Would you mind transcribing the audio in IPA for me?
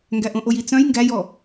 ŋɡæʔõʔoji t͡sœ̃j ŋɡæjɔ

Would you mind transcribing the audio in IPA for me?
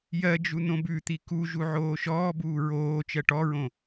jɜ d͡ʒunõbʉt̪i ku ʒuʕoːʃɔːbuː ɹoː t͡ʃɜʈɔɹõ

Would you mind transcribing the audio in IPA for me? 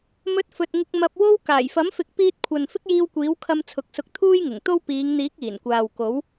mɵ˧t̚fɵ˨t̚ ŋɪ˧k̚ mɐ˧p̚ wo˥w kaː˨˩jfɐ˨˥mfɪ˨˥k̚ piː˧t̚kʷʰɐ˨n fɪ˥k̚jiː˧wkʷiː˨˥wkʰɐ˧m t͡sʰʊ˨˥k̚sʊ˧k̚ t̪ʰuː˥jŋɪ˨˩ŋt̪o˥w piː˨˧ŋn̪iː˨˥k̚ iː˨˩nkʷaː˨wko˨˥w

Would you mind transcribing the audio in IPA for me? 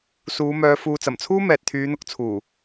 suː˨˧mœː˨˧ fuː˨t͡sɐ˨˩mt͡sʰuː˥ mɛː˨t̚t̪ʰyː˨˧n̪ʊ˨k̚t͡sʰuː˨˩

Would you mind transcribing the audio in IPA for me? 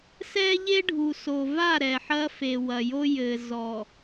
sɛ˦ʎe˦ ɖʱu˨so˨va˦˨ ɾɛ˨ħɐ˦fe˨ wɐ˨jo˦jɘ˨ zɔ˨

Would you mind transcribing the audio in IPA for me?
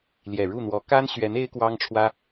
ljɛ˨˩ɻu˥˩n̪wɔ˧˥ ka˥nɕɥɛ˧˥n e˥ɪ̯kwɑ˥ŋʈ͡ʂʰwä˥

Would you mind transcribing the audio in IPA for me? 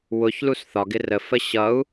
wʊçlus θɒɡɪ rəfə ɕʌu̯

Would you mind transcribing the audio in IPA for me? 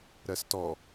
ɾɜstɔ

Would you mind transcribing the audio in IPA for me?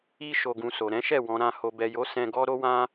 i˧ ʃo˧ɡũ˧so˨ ɾɛ̃˨˦ʃɛ˦˨ wɔ̃˨ ɾã˧ ho˨bɛ˨jo˨˦ sɛ̃˧ɡɔ˦ɾo˦wã˦

